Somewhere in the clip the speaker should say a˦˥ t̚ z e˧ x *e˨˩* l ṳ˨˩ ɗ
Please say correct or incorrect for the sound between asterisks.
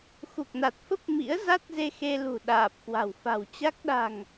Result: incorrect: e˧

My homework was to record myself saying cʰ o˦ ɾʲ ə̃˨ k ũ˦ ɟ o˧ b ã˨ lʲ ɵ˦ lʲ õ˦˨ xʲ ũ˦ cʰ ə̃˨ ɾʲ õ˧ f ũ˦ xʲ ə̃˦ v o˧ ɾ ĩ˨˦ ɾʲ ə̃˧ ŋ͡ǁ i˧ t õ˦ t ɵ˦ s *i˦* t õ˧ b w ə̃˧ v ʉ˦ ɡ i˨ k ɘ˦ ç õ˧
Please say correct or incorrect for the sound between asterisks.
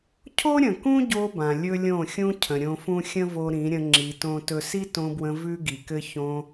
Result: correct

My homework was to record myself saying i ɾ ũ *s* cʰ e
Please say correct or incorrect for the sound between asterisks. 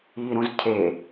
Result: incorrect: z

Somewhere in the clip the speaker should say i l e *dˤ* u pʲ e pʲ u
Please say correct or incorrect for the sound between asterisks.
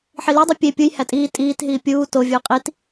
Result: correct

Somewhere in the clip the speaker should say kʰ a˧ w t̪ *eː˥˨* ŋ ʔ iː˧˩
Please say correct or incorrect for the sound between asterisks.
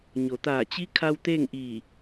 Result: correct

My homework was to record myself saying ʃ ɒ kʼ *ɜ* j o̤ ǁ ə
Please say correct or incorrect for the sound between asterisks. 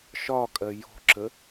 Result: correct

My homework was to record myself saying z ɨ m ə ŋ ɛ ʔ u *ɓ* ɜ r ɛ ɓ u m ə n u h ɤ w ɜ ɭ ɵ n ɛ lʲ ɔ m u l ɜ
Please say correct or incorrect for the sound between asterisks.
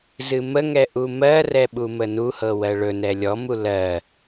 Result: incorrect: m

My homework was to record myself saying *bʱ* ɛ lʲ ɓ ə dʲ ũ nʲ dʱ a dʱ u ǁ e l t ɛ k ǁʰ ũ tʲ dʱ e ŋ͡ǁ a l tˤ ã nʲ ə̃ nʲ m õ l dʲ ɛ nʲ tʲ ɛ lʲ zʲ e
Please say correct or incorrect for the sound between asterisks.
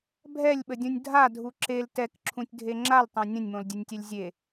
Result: correct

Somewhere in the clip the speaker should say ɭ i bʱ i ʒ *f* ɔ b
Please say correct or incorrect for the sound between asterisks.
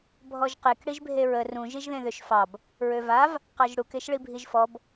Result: correct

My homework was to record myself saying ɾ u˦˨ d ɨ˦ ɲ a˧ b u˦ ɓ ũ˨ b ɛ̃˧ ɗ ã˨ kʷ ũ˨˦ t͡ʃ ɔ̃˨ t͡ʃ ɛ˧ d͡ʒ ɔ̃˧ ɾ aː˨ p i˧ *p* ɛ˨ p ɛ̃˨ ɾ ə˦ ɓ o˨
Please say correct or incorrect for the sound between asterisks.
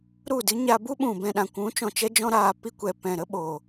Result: incorrect: kʷ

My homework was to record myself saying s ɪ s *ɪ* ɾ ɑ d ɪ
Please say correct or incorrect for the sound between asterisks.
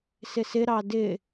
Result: correct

